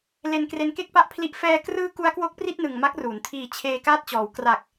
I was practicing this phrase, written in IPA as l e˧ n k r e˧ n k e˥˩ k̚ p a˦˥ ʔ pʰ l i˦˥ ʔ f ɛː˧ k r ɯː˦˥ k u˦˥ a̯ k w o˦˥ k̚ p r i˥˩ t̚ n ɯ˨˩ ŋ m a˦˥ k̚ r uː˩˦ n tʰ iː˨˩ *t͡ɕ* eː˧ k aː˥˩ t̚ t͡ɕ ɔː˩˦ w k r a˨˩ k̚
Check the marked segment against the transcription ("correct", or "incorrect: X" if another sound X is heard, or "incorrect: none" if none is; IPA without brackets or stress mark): incorrect: t͡ɕʰ